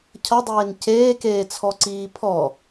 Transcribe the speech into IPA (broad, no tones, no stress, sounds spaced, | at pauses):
cʰ ʌ dˤ eː n c eː k eː t͡sʰ ɔ ǀ iː pʰ ɔ